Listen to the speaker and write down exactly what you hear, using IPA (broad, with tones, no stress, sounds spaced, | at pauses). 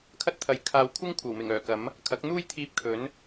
kʰ ɐ˥ t̚ t̪ʰ ɐ˨˧ j kʰ aː˨ w kʷʰ ɪ˥ ŋ kʷʰ ɐ˨˩ w m ɪ˨˩ ŋ œː˨˩ k ɐ˨˥ m | kʰ ɐ˨˥ k̚ n̪ uː˥ j t̪ʰ iː˧ p̚ kʰ ɵ˨˥ n